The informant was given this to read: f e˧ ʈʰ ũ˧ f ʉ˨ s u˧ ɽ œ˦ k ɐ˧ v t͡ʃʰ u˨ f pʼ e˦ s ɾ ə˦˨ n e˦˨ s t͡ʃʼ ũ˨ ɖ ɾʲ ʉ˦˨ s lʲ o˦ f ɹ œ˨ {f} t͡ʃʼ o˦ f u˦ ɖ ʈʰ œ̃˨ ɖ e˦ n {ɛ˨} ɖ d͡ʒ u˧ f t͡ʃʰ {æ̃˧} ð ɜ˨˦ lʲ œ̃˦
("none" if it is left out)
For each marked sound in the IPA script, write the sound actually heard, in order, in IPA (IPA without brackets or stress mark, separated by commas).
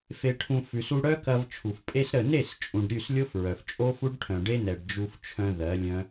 f, ɛ˨, œ̃˧